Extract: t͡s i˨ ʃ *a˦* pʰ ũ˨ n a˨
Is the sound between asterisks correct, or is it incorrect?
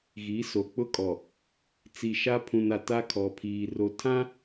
correct